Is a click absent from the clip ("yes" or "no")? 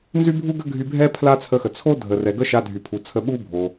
yes